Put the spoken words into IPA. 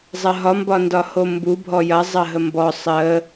zˤ ɐ ɦ ɒ m b ɒ n d ɒ h o m b u bʱ ɔ j ɐ zˤ ɐ ɦ ə m b ɔ sˤ ə

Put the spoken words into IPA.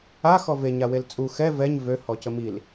a x ɔ v e ɲ a w e l t͡sʼ u x ɛ v ɛ ɲ v ø h ɔ c ə m i l

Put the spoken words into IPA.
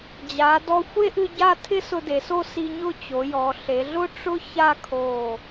d͡ʑ a˩˧ d ɔ˧ xʷ e˥ ʔ ɨ˧ ɟ a˥˧ tʰ ɪ˥ s ʊ˧ d e˩˧ s o˥˧ s i˧ ɲ ʊ˥˧ t͡ɕ o˩˧ j ɔ˩˧ ɬ e˩˧ ɮ ʊ˥ ʈ͡ʂ ʊ˥ ç a˥˧ kʰ o˧˩

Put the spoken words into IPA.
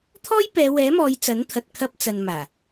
t̪ʰ ɔː˥ j p ɛː˨˧ w ɛː˨˥ m ɔː˨˧ j t͡s ɐ˨˥ n t̪ʰ ɐ˨ t̚ kʰ ɐ˧ p̚ t͡s ɐ˨ n m aː˨˩

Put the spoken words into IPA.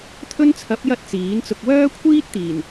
t̪ʰ ɵ˥ n t͡sʰ ɐ˨˥ p̚ j ɐ˧ t̚ t͡s iː˨˥ n t͡s ʊ˧ k̚ w œː˥ kʷʰ iː˥ t̚ t̪ iː˨˩ n

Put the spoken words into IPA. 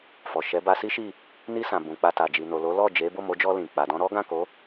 f ɔ˨ ʃ ɛ˨˦ b a˧ s i˦ ʃ i˦˨ | n i˧ s ã˨ b ũ˨ k͡p a˧ t a˨ d͡ʒ i˨ n o˨ l o˨˦ l ɔ˦˨ d͡ʒ e˨˦ b o˦˨ m o˨˦ d͡ʒ ɔ˧ l ĩ˨ k͡p a˨ d ɔ̃˧ ɾ ɔ˦ ɡ ã˦˨ k o˨˦

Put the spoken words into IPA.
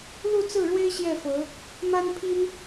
l u˥˧ t͡s ɹ̩˥˩ ɻ w e˥ ɪ̯ ɕ j ɛ˥˩ f ɤ˧˥ | m a˥ n pʰ i˥ n

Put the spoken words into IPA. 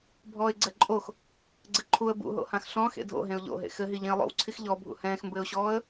bʱ ɔː ɪ̯ ɡ͡ǀ ɛ ǃʼ o x | ɡ͡ǀ ɘ ǃʰ u ə̯ b ṵ ɦ o̰ h ã x ɬ ɔ̃ x ḛ dʱ o̰ ɦ ẽ ʊ̯ ʎ o̰ ɦ ḛ x ɘ ɦ i ʎ ẽ ə̯ lˠ o̰ w ǀʰ i x ʎ ɔ bʱ ṵ h ɛ̃ː x m b ɘː ʊ̯ ɕ ɔː ə̯

